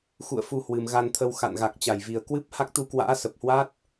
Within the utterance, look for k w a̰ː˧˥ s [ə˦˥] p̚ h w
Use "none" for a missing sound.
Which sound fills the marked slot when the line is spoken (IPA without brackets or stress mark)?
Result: ə˨˩